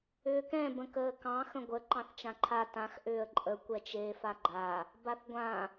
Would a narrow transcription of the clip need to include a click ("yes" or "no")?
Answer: yes